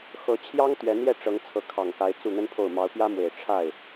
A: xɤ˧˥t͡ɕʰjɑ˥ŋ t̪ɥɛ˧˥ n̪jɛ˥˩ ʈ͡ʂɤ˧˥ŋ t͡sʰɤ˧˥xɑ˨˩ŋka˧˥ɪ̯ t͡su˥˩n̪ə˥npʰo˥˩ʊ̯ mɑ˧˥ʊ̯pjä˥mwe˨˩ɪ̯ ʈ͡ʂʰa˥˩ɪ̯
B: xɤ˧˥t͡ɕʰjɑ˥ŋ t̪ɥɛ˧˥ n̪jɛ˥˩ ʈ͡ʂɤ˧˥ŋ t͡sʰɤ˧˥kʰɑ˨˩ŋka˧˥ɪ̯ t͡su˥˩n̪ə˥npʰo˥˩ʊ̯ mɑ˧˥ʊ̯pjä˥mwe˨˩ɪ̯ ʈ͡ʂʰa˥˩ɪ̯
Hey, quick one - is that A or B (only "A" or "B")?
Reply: B